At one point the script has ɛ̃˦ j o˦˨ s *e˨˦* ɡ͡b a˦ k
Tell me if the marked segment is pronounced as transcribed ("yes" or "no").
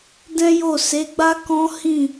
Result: yes